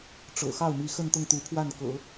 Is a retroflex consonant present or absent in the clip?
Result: present